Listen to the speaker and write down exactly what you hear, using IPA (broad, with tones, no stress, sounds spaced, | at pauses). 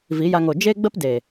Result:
v i˨˦ j a˧ ŋ o˨ d͡ʒ e˦ ɡ͡b ə˦ p d e˨